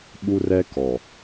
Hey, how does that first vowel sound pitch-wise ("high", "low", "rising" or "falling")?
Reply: high